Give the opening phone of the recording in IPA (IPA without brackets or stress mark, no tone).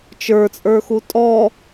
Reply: t͡ʃ